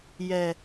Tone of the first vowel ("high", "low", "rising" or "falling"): low